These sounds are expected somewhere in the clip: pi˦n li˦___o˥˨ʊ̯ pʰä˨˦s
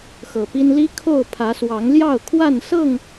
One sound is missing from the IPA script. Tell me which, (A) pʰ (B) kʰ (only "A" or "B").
B